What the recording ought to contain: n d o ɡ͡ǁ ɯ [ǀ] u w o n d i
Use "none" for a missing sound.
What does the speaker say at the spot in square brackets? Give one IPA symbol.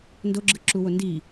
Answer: ǁ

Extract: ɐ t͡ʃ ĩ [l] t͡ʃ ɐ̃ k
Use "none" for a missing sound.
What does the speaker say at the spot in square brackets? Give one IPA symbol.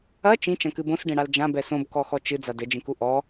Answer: none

